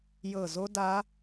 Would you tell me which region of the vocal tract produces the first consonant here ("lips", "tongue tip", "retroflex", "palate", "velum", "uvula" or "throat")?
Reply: palate